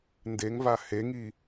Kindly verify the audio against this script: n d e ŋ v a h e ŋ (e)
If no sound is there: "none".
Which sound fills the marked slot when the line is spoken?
i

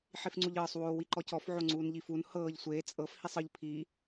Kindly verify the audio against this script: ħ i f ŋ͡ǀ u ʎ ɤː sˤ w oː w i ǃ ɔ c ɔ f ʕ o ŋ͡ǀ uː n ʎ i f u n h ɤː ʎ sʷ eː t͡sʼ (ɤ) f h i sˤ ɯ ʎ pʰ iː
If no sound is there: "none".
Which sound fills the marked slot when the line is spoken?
ɤ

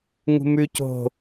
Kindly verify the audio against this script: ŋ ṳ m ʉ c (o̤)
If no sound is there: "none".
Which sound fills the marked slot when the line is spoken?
o̤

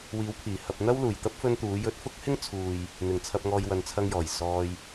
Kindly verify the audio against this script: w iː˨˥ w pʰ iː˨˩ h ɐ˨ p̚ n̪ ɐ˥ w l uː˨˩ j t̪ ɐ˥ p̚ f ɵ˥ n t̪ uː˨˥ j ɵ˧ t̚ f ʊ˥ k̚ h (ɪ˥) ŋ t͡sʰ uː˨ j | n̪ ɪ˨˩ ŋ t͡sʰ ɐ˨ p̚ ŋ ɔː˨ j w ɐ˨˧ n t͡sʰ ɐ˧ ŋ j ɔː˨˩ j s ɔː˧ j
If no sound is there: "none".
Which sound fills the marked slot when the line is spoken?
ɪ˥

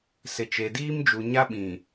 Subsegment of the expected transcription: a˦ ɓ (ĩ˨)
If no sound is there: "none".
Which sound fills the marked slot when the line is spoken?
ĩ˨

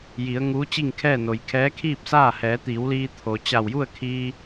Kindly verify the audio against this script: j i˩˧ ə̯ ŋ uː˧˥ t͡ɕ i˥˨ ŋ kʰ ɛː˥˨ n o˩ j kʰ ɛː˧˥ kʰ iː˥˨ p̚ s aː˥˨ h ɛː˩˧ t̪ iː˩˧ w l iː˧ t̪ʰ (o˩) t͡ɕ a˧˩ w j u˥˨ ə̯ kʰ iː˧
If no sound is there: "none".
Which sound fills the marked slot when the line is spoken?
o˩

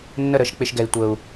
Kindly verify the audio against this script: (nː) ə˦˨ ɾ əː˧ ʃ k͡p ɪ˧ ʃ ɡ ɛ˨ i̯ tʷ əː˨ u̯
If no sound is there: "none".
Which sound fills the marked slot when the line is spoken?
nː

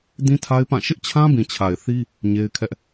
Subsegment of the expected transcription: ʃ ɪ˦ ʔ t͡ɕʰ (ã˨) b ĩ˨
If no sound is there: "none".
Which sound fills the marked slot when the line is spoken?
ã˦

